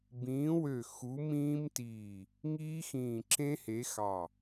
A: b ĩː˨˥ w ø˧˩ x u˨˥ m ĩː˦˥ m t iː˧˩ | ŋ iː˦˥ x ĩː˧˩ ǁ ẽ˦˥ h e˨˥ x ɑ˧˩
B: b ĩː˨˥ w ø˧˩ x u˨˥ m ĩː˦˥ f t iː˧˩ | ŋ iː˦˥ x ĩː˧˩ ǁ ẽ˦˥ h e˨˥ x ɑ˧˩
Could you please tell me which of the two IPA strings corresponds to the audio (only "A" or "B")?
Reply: A